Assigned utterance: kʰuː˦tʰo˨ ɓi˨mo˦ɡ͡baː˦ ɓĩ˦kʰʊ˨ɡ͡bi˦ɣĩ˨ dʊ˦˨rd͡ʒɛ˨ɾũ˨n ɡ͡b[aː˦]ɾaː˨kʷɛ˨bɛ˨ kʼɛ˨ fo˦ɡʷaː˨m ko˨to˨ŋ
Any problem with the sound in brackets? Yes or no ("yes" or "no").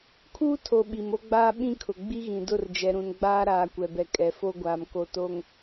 no